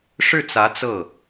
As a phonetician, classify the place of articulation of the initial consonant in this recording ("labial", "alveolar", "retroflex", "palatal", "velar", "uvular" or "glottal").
retroflex